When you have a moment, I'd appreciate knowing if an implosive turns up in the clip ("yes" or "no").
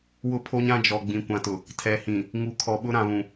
yes